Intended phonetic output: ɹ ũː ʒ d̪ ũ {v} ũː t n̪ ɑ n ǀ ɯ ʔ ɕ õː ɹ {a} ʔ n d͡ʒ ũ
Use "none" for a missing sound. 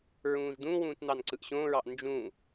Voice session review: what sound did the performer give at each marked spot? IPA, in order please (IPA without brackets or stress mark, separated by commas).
w, ɑ